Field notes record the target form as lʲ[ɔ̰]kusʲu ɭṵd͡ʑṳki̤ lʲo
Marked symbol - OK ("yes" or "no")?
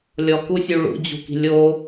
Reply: no